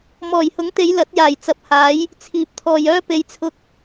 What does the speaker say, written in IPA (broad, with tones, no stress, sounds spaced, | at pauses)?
m ɔː˨˩ j h ʊ˨˥ ŋ t̪ e˨˧ j l ɐ˨˥ t̚ j aː˨˩ j t͡s ɐ˨ p̚ h aː˨˥ j | t͡sʰ iː˨ p̚ t̪ʰ ɔː˨ j œː˥ p e˧ j t͡sʰ ʊ˥ k̚